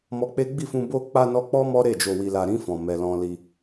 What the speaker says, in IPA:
m ɔ˧ k͡p e˦ ɡ͡b i˦˨ f ũ˧ b o˧ k͡p a˧ n ɔ˧ k͡p ɔ˦ m ɔ˦ ɾ e˦˨ d͡ʒ o˨ w i˨ l a˨ ɾ ĩ˧ f ɔ̃˨ m ɛ˨ l ɔ̃˧ l i˧

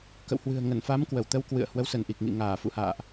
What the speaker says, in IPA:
k ə̰˧˨ w h w ɨ̤˨˩ ə̯ ŋ ə˧˩ n f a˨˦ m k w ə˧˩ w t̪ ə˧ w k w ɨ̰˧˨ ə̯ h w ə˨˦ w s ə˧˩ n ʔ i˨˩ k̚ ŋ ḭ˧˨ ŋ aː˧˩ f ṵ˧˨ h a̰ː˧˨ ʔ

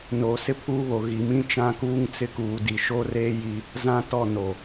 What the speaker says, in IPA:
n oː˨ s ɪ˦ pʰ uː˦ β o˨ ɣ i˨ m ĩ˦ t͡ʃ ã˦ k uː˦ ŋ t͡s ɪ˦ k uː˨ d i˨ ʃ o˦ r eː˦ j i˦ | z ã˦ t ɔ˦˨ n o˨

